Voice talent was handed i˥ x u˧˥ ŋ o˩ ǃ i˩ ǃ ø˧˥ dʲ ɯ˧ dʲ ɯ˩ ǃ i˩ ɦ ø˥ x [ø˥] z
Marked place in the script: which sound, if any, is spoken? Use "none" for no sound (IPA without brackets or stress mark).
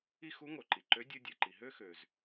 ø˩